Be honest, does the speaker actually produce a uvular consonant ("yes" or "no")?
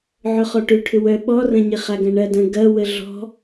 yes